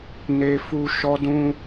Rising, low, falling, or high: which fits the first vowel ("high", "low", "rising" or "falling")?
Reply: high